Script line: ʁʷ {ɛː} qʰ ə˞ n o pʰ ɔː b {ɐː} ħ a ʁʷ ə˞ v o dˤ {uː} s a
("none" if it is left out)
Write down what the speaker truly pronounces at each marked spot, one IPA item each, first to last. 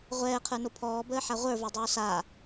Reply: ɛː, əː, oː

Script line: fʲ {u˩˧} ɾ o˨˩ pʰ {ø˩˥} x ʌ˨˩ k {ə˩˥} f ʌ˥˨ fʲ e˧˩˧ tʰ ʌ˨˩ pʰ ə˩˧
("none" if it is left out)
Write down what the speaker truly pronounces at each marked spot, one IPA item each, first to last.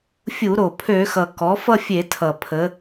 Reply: u˧˩˧, ø˧˩˧, ɔ˩˥

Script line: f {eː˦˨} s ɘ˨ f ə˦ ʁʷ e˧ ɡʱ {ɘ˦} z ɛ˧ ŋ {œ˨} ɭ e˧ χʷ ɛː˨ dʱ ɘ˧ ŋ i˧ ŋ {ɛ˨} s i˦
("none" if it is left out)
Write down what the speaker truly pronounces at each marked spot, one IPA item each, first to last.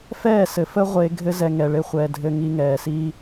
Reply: ɛː˦˨, ɘ˦, ɛ˨, ɛː˨

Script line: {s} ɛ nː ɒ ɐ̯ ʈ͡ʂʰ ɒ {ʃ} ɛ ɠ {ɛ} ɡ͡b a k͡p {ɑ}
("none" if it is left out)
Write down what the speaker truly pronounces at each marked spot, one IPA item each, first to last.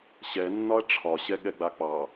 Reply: ɕ, ɕ, ɛ, ɑ

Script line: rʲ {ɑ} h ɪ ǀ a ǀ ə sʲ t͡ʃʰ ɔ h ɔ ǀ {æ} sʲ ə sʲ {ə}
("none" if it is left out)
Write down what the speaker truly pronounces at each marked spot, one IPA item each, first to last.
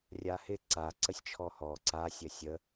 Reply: a, a, ə

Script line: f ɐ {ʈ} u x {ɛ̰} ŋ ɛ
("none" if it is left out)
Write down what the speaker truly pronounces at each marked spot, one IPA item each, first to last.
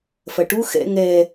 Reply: ʈ, ɛ̰

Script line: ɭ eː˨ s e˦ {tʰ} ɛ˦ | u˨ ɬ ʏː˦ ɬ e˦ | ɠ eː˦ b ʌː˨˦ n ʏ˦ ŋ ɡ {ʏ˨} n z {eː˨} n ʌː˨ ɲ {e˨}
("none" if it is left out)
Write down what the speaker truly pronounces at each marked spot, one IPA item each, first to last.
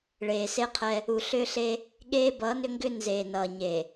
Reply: qʰ, ʏ˦, eː˨, e˨

